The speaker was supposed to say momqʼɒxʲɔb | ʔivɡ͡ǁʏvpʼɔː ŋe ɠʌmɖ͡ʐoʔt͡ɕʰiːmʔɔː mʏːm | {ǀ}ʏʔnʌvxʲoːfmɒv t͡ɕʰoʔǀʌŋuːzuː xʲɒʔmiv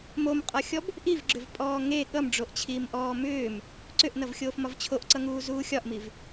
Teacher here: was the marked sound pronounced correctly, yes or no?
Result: yes